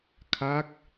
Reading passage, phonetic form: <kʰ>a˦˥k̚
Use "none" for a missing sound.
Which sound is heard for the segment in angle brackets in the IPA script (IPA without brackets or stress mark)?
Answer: kʰ